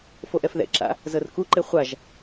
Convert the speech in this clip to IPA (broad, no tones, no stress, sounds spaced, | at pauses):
f o ʔ ɛ f ð ɛ̰ ǁ a̰ | z ɤ r k u ǃ e χʷ a ʒ